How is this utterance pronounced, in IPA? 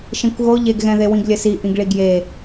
ʃẽkʷɣo ʎeɡɣɛ̃ðe wĩɡlʲɘsi ʔĩɡɭiɡje

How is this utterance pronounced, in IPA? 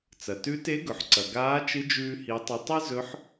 t͡sɐ˩tʉ˧˥te˧˥ɡɵ˩ħ ǀɐ˩ ɡaː˧˥t͡ʃɨ˧˥ d͡ʒʉː˧hi˩˧tˤɨ˩˧ tˤɨ˥zɵ˧˥ħ

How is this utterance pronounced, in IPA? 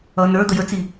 ʌ nə˞ d̪əjət͡si

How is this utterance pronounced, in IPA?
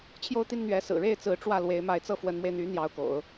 t͡ɕʰjo˥˧ʊ̯t̪i˥˩nn̪ɥɛ˧˥ sɹ̩˨˩ɻe˥˩ɪ̯ t͡sɹ̩˧˥ʈ͡ʂwä˥˩ lwe˧˥ɪ̯ma˧˥ɪ̯t͡sɤ˥˩ fwə˧˥nmwe˧ɪ̯n̪y˧˥ n̪jɑ˧˥ʊ̯ko̰˨˩˦ʊ̯

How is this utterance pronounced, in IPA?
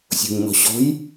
sʲo̤ɲnɔ̤ɕɔ̤j

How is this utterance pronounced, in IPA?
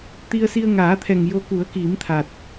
t̪i˧ə̯si˧ə̯ŋaː˨˩˦t̪ʰɛ˨˩ŋ jo˧ ku˨˩˦ə̯ki˨˩˦mt̪ʰa˨˩t̚

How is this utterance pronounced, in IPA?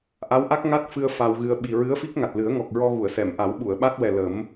ʔa˧˥wʔa˦˥k̚ ŋa˦˥t̚fɨ˧ə̯ fa˧wɣɨ˧ə̯ ɓi˨˩ɹɨ˧˥ə̯fi˦˥k̚ ŋa˨˩t̚lɨ˨˩˦ə̯ŋɔ˨˩k̚ɹɔ˧ ɣu˨˩˨ə̯sɛ˨˩˨m ʔa˨˩˦wɓu˨˩˨ə̯ɓa˦˥t̚wɛ˨˩ lə˨˩˦m

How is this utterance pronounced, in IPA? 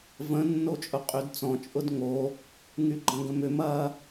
və̃ nːot͡ʃʼʊqʼydt͡sɔ̃ t͡ʃʼʊdŋo | ŋyɡ͡ǃɐ̃ɡə̃mʏm ɐ

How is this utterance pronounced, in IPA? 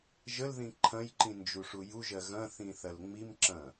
ʒəlðĩ ǃʰɐ̃jǃĩ nd͡ʒuʂujuʒɜ ɣɐ̃θĩ θɐlŋ͡mimǁɐ̃

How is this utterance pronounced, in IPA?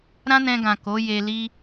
ɾã˦nɛ̃˧ɡã˨ ko˨˦ je˧li˦

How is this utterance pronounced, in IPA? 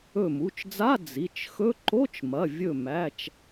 ɵ˧˩mu˩˧˩t͡ʃd͡za˧˥˧ d͡zi˩˧˩t͡ʃxɵ˧˥˧ ǃo˧˥˧t͡ʃmɐ˩˧˩ vʲɵ˧˩mæ˩˧˩t͡ʃ

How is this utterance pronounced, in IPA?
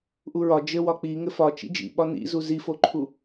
ʔuɹɒ d͡ʒɘwɒ k͡pi ŋɘfɒ t͡ʃḭd͡ʒḭɓɒ nḭzu zifoǃʰu

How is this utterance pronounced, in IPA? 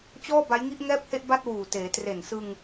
t͡ɕɔː˥˩ba˦˥jŋi˥˩ʔ ŋɛː˥˩p̚he˥˩ʔba˥˩t̚ wuː˨˩teː˩˦ tre˨˩n sɯ˧ŋ

